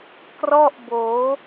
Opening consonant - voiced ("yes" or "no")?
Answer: no